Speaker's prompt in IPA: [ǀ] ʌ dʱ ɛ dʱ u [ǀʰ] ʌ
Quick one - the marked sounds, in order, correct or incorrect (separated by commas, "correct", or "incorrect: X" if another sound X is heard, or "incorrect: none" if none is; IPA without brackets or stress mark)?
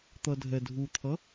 incorrect: t̪, incorrect: t̪ʰ